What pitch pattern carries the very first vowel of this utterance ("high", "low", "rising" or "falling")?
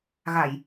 low